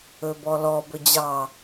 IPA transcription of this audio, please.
ɵ b ɔ l ɔ b ɵ d͡ʑ ɑ

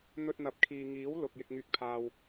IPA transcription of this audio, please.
n̪ ɵ˧ t̚ n̪ ɐ˨˥ p̚ kʰ iː˨ ŋ iː˨˥ w l ʊ˨ k̚ j ɪ˧ k̚ ŋ yː˧ k̚ pʰ aː˧ w

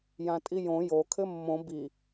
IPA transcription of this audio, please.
j ã tʼ i j õ j o kʰ ɘ mː õ b i

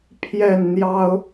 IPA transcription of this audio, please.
pʰ j ɛ˥˨ n n̪ j ɑ˦ ʊ̯

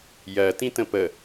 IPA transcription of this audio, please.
j ɜ t ĩ t ə̃ p ə

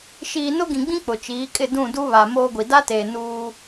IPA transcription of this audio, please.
ʃ iː˨ n ʊ˦ ɡ ĩ˨ ɡ͡b ĩ˦ k͡p ʊ˨ t͡ʃ iː˨˦ kʼ ɪ˦˨ d ũ˦˨ d u˦ β a˨ m oː˦ ɡʷ i˨ d a˦ t eː˨ n uː˦

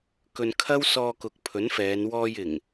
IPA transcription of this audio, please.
k ɵ˧ n kʰ ɐ˥ w s ɔː˧ k ʊ˨ k̚ pʰ ɵ˨˥ n f ɛː˨˧ n w ɔː˧ j ɪ˨˩ ŋ

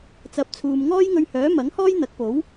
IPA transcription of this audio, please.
t͡s ɐ˨˥ p̚ t͡sʰ uː˨ m ŋ ɔː˥ j ŋ ɵ˧ ɥ h œː˨˥ m ɐ˨˥ ŋ h ɔː˥ j n̪ ɐ˨˥ k̚ p o˨˥ w

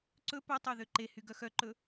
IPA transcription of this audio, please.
ǀ ɵ p ɵ tˤ ø ð ø ǃ e h y ɡ œ x œ ǃ ɵ

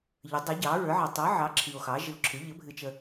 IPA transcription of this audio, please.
ʎ ə˩˥ dˤ i˩˥ ɟ ɑ˩˥ ɹ ə˞˩˥ ʕ ɑ˨ tˤ ə˞˩˥ ʕ ɑ˩˥ ǁʰ i˨ o̯ x ɑ˩˥ ʒ ɨ˨ o̯ ǁʰ ɨ˩˥ ʎ ə˩˥ bʱ ɨ˨ t͡ʃ ə˨

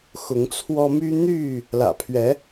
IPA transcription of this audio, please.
x ʊ˨˦ ŋ t͡sʰ w ɔ˦ m y˦ n̪ y˥˨ | l ä̰˨˩ pʰ ɥ ɛ˨˦

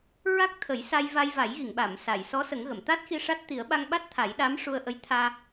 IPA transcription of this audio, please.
ɹ a˦˥ k̚ t̪ʰ ə˨˩˦ j s a˧ j v a˧ j v a˨˩˦ j ɣ i˨˩˨ ŋ ɓ a˨˩˨ m s a˨˩˨ j s ɔ˧˥ s ə˨˩˦ ŋ ɣ ə˨˩˨ m t̪ a˦˥ t̚ x i˧ ʂ a˦˥ t̚ t̪ i˨˩˦ ə̯ ɓ a˧ ŋ ɓ a˦˥ t̚ t̪ʰ a˨˩˦ j ɗ a˧˥ m ʂ u˧ ə̯ ʔ ə˧˥ j t̪ʰ aː˧

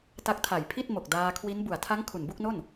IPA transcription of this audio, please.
t a˦˥ k̚ tʰ a˨˩ j pʰ i˥˩ t̚ m o˨˩ k̚ d aː˧ kʰ w i˦˥ n b u˨˩ a̯ tʰ a˦˥ ŋ kʰ u˨˩ n b u˥˩ k̚ n o˥˩ n

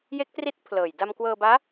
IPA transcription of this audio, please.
j e˦˥ k̚ t r i˦˥ t̚ pʰ l ɤː˨˩ j d a˧ m k w ɤː˧ b aː˦˥

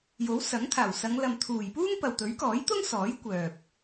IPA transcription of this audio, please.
j o˨˥ w s ɐ˨˥ ŋ t̪ʰ aː˨˩ w s ɐ˨˧ ŋ l ɐ˨ m t̪ʰ uː˨˩ j p uː˥ ŋ p ɐ˨ w t̪ ɵ˨˥ ɥ k ɔː˨˥ j t̪ ʊ˥ ŋ s ɔː˨˥ j kʷ œː˨ p̚

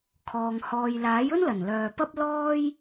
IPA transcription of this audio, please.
kʰ ɔː˨ ŋ h ɔː˨ j l aː˨˥ j ɵ˥ n l ɐ˨˩ n l œː˨ p ɐ˥ p̚ l ɔː˥ j

